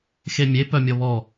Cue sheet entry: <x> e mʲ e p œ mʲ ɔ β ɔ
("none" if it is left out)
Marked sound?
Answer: x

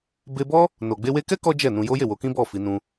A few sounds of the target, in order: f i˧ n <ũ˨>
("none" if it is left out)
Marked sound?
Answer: ũ˧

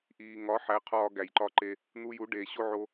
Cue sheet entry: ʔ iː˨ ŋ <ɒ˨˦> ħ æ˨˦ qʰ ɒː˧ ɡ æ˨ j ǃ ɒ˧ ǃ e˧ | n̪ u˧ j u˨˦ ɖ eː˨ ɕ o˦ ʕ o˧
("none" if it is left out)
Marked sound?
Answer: ɒ˨˦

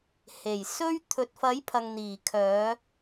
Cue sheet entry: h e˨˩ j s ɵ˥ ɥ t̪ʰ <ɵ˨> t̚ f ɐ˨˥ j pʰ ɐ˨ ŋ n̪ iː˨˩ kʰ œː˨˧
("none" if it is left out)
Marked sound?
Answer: ɵ˨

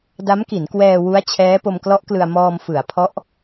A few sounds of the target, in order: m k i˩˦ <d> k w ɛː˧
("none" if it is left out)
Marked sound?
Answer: n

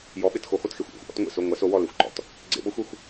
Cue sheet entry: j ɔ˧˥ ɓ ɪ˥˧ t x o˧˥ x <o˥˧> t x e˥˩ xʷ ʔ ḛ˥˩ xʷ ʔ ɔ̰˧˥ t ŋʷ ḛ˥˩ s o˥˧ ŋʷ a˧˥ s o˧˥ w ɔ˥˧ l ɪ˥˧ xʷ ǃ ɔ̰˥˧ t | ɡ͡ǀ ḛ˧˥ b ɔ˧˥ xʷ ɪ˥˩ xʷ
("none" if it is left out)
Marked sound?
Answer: o˥˧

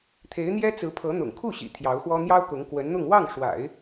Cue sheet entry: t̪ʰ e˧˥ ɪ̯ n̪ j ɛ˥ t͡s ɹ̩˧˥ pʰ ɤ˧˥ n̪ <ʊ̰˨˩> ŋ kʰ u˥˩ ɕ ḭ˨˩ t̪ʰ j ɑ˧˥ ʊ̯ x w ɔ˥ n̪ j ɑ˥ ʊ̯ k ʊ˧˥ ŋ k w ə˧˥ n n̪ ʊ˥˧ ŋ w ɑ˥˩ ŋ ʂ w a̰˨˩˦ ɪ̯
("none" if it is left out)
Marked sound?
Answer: ʊ̰˨˩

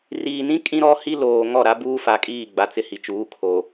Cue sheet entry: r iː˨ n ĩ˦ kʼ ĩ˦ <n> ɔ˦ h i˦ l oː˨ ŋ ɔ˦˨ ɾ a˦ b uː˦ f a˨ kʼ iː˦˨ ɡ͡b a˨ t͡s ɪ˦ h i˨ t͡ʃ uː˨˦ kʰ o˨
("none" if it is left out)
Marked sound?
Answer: ɾ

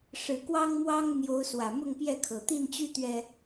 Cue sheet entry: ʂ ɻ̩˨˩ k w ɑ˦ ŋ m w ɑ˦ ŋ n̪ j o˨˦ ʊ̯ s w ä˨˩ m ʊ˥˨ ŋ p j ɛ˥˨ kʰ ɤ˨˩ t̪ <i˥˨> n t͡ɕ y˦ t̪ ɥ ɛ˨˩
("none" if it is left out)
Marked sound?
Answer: i˥˨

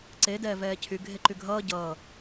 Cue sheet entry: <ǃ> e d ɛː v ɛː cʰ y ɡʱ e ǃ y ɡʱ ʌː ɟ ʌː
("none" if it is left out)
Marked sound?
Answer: ǀ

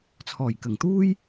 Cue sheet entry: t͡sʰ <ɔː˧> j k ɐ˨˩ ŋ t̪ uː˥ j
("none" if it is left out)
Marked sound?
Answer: ɔː˨˩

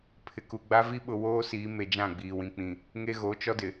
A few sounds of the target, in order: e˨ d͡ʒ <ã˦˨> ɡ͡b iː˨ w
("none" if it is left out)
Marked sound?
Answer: ã˦˨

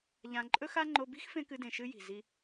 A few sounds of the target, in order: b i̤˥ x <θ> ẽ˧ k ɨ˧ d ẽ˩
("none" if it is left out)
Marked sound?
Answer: f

